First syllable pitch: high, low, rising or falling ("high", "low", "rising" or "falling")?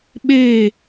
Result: falling